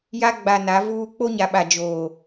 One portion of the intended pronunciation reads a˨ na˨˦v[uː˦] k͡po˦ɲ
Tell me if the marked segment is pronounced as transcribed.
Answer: yes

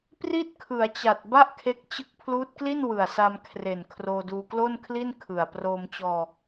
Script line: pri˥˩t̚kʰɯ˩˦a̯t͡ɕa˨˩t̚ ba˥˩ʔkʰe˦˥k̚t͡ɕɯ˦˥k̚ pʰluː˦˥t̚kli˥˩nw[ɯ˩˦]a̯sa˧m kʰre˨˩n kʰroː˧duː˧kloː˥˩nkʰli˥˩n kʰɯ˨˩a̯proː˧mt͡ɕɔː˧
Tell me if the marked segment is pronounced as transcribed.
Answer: no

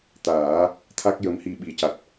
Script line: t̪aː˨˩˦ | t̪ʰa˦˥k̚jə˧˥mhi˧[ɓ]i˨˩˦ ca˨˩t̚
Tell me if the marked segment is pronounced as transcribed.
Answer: yes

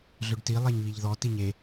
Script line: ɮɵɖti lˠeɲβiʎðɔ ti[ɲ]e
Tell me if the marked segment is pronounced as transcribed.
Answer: yes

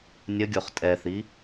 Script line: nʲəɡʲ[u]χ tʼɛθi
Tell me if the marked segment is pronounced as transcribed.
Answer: no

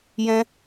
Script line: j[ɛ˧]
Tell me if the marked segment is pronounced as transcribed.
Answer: no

